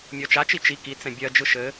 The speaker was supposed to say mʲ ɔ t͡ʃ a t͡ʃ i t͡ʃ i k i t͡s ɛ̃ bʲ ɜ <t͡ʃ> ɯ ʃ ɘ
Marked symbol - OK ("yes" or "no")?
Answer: no